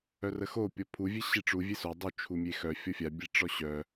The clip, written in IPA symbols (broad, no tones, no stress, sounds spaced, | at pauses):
œ r ə x o pʲ ɔ pʰ u vʲ e ɕ i ʈ͡ʂ u vʲ e s o dˤ u t͡ʃʰ u mʲ e x œ fʲ ɔ fʲ a bʲ e ʈ͡ʂ ɔ ɕ œ